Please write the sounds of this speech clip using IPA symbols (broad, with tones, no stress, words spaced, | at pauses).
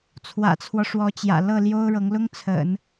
t͡sʰwä̰˨˩t͡sʰwɔ˦ʂwɔ˧˥t͡ɕjä̰˨˩ lɤ˥˩ ljo˥ʊ̯ɻɤ˧˥ŋ lʊ˥ŋt͡sʰə̰˨˩˦n